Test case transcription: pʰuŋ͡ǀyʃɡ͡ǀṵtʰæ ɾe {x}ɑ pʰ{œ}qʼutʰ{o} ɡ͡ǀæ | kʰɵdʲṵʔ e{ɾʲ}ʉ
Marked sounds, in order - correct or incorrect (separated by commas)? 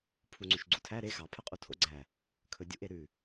correct, correct, incorrect, incorrect